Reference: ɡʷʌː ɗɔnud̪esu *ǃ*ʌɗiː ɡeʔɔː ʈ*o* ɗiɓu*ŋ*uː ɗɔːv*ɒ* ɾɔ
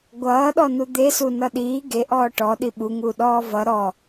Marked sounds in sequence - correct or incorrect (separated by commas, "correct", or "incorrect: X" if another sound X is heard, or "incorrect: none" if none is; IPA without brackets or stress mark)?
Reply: incorrect: n, incorrect: ɔ, correct, incorrect: ʌ